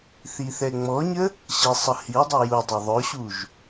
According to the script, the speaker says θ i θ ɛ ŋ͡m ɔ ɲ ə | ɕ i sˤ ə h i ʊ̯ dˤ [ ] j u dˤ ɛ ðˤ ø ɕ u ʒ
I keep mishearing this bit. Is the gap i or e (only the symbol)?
e